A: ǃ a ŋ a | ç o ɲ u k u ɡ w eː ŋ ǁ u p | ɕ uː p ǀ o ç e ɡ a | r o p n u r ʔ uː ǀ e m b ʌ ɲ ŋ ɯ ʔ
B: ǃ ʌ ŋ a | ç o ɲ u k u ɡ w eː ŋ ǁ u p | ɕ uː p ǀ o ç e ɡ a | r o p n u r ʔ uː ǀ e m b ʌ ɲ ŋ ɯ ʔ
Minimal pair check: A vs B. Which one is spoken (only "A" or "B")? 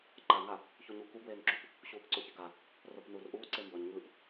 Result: A